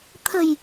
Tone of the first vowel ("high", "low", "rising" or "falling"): low